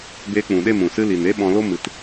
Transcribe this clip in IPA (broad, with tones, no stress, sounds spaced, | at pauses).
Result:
b eː˧ k͡p ũ˨ ɗ e˦˨ m ũ˨ s ɨ˦ l i˨ n e˦ ɓ ɔ̃˧ l o˦ m ɨ˧ t